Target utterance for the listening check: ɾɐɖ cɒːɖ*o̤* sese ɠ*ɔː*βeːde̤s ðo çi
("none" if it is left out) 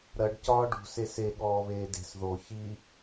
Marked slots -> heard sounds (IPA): ṳ, ɔː

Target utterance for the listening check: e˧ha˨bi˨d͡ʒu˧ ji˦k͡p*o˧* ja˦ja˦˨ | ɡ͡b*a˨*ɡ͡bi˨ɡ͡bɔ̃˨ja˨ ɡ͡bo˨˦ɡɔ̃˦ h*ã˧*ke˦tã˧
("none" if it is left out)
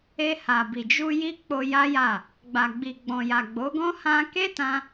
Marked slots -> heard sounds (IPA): o˧, a˨, ã˧

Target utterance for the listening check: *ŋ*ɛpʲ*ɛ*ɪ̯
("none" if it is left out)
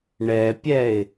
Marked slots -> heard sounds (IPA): ɳ, ɛ

